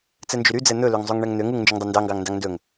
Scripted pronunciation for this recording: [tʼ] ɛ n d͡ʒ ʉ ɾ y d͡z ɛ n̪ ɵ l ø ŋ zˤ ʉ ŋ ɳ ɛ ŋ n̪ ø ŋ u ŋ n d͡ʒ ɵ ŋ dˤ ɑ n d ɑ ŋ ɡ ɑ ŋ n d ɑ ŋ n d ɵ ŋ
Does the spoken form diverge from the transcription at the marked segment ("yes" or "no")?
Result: yes